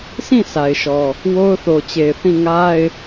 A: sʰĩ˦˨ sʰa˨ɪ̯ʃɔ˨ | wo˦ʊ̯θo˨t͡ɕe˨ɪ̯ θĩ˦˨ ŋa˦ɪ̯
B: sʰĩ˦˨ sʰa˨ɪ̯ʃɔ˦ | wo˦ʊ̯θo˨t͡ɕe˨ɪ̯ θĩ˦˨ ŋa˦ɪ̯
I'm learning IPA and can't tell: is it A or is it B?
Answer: A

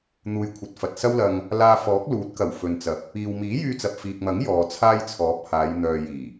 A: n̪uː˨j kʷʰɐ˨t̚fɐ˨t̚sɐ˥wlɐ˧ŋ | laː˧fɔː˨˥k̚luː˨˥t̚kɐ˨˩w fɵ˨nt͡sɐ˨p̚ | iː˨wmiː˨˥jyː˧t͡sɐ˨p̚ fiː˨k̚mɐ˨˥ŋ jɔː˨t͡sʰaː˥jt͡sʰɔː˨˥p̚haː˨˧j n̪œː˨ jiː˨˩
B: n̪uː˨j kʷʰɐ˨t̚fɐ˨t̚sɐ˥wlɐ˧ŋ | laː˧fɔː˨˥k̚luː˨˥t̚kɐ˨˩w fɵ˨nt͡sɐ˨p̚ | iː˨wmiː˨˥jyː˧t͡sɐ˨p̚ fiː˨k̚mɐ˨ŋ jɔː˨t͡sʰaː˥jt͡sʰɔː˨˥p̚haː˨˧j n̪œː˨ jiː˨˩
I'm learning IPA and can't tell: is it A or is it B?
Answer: A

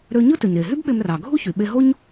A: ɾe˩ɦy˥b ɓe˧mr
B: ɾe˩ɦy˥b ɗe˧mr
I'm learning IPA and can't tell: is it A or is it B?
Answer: A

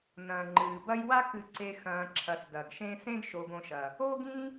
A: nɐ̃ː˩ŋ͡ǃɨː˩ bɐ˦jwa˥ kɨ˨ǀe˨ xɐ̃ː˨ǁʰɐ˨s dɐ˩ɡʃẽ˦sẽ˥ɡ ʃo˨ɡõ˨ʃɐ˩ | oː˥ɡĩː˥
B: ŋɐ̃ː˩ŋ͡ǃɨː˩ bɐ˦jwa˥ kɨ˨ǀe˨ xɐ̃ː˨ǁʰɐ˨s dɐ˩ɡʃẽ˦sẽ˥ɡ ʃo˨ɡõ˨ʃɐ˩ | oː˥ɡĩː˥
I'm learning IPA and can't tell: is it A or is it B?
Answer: A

